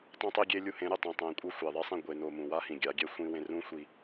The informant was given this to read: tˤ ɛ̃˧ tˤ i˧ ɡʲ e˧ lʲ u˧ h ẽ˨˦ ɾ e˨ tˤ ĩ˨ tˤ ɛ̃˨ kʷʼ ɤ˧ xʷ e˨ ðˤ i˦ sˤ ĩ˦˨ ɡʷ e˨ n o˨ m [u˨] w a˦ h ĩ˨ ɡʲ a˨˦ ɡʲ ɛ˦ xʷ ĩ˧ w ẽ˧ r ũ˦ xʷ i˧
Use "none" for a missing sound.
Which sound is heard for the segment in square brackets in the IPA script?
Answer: ũ˨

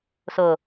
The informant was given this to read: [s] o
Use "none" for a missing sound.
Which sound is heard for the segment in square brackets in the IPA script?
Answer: s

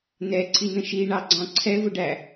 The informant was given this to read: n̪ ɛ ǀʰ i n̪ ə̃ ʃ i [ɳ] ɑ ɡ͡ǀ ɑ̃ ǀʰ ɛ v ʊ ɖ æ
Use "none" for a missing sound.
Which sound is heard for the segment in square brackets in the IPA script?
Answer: ɳ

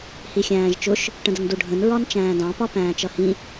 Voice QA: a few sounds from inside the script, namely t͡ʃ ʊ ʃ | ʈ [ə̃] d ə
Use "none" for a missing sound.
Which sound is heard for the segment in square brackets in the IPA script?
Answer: ə̃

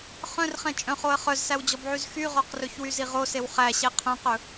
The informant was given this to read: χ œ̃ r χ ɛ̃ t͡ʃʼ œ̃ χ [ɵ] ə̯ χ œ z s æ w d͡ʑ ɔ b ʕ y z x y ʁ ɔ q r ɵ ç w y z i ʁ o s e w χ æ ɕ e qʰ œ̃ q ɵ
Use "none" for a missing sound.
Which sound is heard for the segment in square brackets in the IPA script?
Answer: o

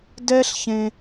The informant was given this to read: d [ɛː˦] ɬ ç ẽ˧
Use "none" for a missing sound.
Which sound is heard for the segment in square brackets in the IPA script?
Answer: ɛ˦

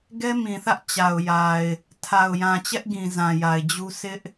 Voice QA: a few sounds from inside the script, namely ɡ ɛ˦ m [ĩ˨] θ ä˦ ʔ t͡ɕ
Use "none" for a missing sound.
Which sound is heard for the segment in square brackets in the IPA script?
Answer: ĩ˨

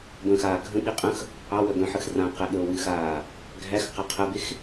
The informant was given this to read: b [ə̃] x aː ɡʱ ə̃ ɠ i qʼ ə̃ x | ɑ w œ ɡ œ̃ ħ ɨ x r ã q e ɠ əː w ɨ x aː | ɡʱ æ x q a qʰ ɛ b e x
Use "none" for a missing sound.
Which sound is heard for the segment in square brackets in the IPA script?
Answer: ə̃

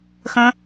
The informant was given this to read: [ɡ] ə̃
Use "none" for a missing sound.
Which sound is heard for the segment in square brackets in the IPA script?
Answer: x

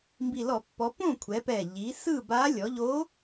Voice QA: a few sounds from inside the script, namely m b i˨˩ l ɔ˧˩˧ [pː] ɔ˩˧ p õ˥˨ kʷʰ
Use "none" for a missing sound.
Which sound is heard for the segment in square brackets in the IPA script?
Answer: pː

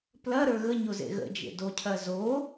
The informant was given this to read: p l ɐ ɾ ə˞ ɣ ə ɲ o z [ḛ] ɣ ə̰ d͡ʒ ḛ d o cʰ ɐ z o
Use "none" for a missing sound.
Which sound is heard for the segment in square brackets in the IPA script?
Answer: ḛ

